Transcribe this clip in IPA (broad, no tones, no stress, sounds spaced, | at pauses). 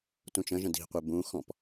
t ũ t͡ʃ ə̃ ʒ ə̃ d i̤ qʷ e b ũ x ɔ̃ p